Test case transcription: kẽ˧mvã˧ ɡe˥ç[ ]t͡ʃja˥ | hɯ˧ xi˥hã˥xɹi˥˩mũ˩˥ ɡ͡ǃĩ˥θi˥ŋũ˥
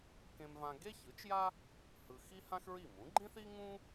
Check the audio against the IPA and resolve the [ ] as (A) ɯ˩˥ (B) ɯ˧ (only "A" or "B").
A